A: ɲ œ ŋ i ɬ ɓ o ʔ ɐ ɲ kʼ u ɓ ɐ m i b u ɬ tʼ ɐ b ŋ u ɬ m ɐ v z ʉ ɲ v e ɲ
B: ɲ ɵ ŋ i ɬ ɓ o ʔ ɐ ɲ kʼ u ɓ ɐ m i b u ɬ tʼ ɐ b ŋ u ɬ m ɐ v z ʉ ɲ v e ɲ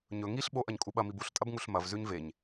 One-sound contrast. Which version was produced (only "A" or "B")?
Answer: B